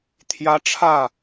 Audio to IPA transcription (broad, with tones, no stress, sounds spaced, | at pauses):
t̪ʰ j ä˧˥ ʈ͡ʂʰ ä˥˩